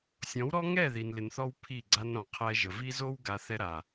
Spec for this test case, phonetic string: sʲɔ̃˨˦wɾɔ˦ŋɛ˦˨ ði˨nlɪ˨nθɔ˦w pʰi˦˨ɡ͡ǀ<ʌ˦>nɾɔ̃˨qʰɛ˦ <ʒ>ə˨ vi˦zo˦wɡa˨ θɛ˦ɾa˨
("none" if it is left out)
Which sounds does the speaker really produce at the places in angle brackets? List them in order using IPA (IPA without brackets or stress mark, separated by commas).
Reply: a˦, ʒ